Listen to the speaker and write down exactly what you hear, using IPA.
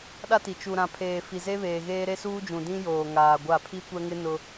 ɗ a˦ t i˨ t͡ʃ u˨ ɾ ã˨ pʰ eː˨ f i˨ z e˦ β eː˨ ɣ eː˦ ɾ e˦ s uː˦ d͡ʒ ũ˨ d ĩ˦ j oː˨ ŋ aː˨ ɡʷ a˦˨ pʰ i˦ kʷ ɛ˦ ŋ ɪ˦ n ʊ˦

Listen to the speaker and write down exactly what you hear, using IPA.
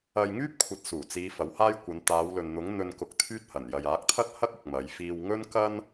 ɐ˧ j ŋ yː˥ p̚ kʷʰ ɐ˨˥ t̚ s uː˨˩ t͡s iː˨˧ f ɐ˨˥ w h aː˥ j kʷ ɐ˨˧ n t̪ aː˨˧ w l ɵ˨ n n̪ ʊ˨˥ ŋ n̪ ɵ˧ n k ʊ˧ k̚ t̪ʰ yː˥ t̚ h ɐ˨˩ n j ɐ˨ j aː˨˥ k̚ t̪ʰ ɐ˥ t̚ h ɐ˥ k̚ ʊ˨ k̚ m ɐ˨˧ j f iː˧ w ŋ ɵ˥ n k ɐ˥ n

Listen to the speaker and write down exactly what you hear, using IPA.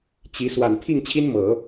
t͡ɕ i˧˥ s w a˨˩ n pʰ i˥˩ ŋ t͡ɕʰ i˥ n m ɤ˨˩˦

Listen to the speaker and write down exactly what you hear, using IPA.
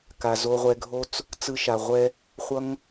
k a˨ z o˧ ʁʷ ɛ˧ ɡʱ o˦ t͡s | t͡s ɯ˧ ʃ a˨ ʁʷ ɛ˧ | χʷ ʌ˦ ŋ

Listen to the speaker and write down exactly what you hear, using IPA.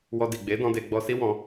w ɔ˧ d i˨ ɡ͡b e˨˦ d ɔ̃˧ d e˧ ɡ͡b ɔ˧ s i˦ w ɔ̃˧

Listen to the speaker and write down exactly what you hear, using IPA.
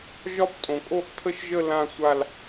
ʒ ɒ˥˨ p tʼ õ˩ kʼ o˥˨ ʔ tʰ ə˥˨ ʃ ʒ ə˥˨ l ã˥˨ sʷ a˥˨ l

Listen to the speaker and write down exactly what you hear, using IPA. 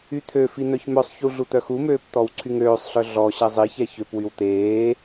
y t̪ʰ ø f i n̪ œ ç m œ sˤ ç u ɮ u t̪ œ x u m øː p t̪ ɔ w ǀʰ y ŋ øː sˤ ɬ œ ɮ ɔ ɕ ɛ zˤ i ç ɛ ç ø p w y w t̪ eː

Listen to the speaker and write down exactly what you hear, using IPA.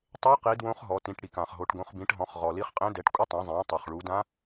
tˤ e˧˥ q i˩˧ d w õ˧˥ χ ɦ ɔ˩˧ t ĩ˩˧ ʈ ɽ i˩ k ã˩ χ ɦ o˩˧ ʈ ɡ õ˩˧ χ b ĩ˩˧ ʈ ɦ ɔ̃˩˧ χ ʁ ɔ˩ l i˧˥ χ qʼ ẽ˧˥ d ɛ˩˧ ʈ kʷʼ ɪ˧˥ tˤ ɛ̃˩˧ zˤ ẽː˩˧ tˤ o˩ χ ɭ u˩˧ d ã˧˥

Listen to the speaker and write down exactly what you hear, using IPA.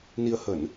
n i˧ ə̯ h ə˧˩˨ n

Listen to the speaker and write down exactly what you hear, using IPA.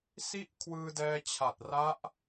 s i˥˩ ʔ kʰ w ɯː˧ d ɛː˧ t͡ɕʰ a˨˩ t̚ r a˦˥ ʔ

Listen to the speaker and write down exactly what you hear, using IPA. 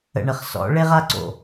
ə̰˨ ɳ ə˨ χ s ɔ̰˨˦ ɭ e˦ ʁ a˦ ǀ o̰˨

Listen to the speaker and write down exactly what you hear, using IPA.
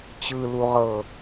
t͡ɕ ɯ l u ʁ ɤ

